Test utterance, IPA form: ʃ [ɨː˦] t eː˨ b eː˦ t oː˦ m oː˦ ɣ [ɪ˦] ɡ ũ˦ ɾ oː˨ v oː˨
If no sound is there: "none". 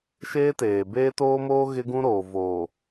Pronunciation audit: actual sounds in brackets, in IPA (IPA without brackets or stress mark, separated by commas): eː˦, ɪ˦